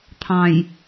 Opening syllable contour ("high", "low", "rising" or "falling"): low